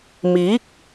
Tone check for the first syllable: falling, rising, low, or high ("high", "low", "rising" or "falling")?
rising